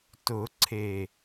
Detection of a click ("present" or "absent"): present